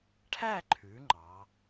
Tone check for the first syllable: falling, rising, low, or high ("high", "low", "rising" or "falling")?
falling